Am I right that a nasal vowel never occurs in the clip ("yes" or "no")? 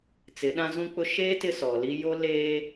no